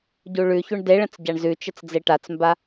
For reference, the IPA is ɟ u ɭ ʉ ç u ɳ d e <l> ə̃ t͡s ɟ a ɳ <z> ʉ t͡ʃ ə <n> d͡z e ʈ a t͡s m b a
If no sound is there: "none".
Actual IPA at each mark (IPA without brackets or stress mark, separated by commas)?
ɭ, z, t͡s